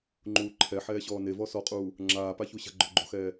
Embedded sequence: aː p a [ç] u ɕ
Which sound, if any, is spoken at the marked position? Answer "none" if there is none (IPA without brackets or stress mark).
ç